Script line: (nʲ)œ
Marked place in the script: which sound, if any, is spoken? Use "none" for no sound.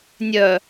nʲ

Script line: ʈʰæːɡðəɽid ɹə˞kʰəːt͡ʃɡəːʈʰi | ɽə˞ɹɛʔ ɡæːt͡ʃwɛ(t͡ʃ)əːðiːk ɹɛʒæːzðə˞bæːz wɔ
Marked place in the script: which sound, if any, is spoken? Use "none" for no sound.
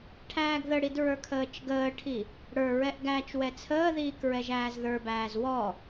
t͡sʰ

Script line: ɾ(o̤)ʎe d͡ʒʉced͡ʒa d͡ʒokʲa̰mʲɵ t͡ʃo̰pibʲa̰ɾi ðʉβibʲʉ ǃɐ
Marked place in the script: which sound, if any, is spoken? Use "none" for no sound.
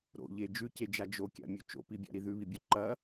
o̰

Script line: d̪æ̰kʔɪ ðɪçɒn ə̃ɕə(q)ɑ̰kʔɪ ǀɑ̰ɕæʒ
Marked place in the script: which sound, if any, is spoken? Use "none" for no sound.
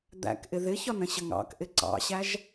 ŋ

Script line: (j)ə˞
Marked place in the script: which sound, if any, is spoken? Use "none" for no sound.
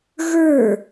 ɣ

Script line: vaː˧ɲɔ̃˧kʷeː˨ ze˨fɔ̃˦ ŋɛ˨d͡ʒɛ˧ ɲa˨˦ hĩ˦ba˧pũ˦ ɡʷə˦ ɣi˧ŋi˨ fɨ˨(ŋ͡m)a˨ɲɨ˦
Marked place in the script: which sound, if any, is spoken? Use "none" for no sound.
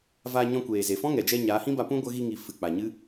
k͡p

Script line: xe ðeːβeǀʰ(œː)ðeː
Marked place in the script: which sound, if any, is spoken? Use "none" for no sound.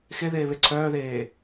œː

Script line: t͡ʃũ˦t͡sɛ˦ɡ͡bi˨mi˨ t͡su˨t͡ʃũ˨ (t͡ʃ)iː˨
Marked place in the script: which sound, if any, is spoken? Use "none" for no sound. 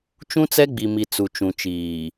t͡ʃ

